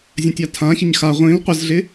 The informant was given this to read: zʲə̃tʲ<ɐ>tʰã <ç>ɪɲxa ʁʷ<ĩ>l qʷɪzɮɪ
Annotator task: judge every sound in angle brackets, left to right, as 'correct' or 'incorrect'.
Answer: incorrect: a, correct, correct

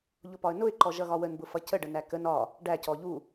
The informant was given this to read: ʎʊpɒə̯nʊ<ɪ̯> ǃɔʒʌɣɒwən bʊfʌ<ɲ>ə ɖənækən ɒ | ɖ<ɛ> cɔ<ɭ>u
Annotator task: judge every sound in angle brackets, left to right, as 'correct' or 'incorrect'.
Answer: correct, incorrect: c, incorrect: æ, incorrect: ʎ

